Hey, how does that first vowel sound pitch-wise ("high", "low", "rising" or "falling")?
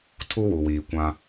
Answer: high